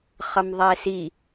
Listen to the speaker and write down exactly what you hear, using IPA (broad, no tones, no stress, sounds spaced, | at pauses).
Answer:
χ ʌ m ðˤ ɛ s i